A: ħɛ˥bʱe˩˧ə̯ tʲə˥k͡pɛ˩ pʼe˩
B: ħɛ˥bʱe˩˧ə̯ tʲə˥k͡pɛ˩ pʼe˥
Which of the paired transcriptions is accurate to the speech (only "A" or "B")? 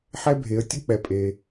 A